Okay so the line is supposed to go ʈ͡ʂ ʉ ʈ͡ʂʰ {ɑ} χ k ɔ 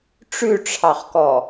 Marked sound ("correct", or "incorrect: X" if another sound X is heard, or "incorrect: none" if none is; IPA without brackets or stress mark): correct